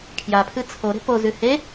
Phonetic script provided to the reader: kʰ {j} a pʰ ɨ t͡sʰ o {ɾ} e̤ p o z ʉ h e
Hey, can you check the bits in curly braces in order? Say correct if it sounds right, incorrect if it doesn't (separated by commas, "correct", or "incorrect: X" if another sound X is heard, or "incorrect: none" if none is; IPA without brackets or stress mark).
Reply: correct, correct